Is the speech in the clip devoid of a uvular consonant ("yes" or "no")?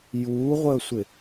no